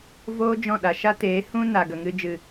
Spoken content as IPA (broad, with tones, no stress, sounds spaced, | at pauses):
v oː˦ d͡ʒ ɔ̃˦˨ ɗ a˨ ʃ a˦ t eː˨˦ h ũ˦ n a˨ ɡ ə˨ ŋ ɨ˧ d͡ʒ ɨ˨